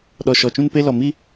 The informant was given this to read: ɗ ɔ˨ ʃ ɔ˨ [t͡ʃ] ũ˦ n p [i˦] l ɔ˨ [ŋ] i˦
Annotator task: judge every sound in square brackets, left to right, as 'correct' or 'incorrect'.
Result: correct, incorrect, incorrect

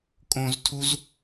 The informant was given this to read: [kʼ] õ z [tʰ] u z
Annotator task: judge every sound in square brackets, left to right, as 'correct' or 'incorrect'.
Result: correct, correct

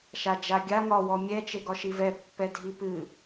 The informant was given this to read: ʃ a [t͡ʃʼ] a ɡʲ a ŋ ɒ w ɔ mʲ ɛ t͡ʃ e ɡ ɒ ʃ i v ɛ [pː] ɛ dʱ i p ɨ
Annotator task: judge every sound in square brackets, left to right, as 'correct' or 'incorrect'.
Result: incorrect, correct

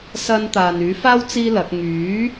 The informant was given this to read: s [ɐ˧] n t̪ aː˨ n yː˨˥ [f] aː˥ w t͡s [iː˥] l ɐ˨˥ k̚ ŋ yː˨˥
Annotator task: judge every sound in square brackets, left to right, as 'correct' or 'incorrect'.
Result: correct, correct, correct

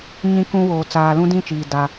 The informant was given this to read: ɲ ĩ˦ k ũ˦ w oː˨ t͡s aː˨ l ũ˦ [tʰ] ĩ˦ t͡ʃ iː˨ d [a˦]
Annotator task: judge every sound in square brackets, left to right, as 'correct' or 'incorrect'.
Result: incorrect, correct

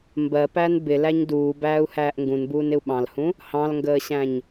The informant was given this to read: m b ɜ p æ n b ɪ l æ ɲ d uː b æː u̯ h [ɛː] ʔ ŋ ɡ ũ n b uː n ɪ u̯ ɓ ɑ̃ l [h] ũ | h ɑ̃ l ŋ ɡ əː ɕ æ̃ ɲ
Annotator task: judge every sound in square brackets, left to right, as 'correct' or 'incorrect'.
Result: incorrect, correct

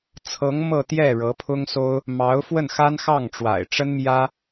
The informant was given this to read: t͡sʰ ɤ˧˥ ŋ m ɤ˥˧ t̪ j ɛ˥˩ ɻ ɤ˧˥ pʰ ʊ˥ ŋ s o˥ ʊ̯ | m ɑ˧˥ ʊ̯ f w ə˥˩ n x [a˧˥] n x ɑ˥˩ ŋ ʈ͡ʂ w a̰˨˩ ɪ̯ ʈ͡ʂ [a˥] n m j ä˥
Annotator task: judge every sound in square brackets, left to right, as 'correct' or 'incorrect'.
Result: incorrect, incorrect

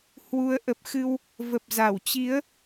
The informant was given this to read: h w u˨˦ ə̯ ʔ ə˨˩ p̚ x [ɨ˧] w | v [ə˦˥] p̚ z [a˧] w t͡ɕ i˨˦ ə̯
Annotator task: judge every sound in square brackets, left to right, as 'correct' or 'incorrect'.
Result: correct, incorrect, incorrect

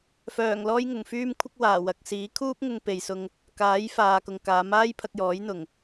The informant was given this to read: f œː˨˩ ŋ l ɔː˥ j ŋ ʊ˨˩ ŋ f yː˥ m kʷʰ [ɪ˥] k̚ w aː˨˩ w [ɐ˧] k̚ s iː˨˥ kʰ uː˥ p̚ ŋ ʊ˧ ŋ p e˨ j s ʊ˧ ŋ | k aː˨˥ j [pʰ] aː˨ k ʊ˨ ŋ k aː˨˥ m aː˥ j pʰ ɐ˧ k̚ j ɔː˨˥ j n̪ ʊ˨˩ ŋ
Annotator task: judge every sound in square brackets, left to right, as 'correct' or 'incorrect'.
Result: correct, incorrect, incorrect

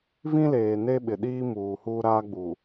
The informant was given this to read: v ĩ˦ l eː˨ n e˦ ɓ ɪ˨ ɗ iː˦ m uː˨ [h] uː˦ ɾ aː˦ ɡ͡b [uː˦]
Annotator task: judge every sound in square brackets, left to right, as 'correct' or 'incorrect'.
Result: correct, incorrect

